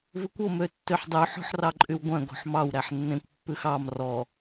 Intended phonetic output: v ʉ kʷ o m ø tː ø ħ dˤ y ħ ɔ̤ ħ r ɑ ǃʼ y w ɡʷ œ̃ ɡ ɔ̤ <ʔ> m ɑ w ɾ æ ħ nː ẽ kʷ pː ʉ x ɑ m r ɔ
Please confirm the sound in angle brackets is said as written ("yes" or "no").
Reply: no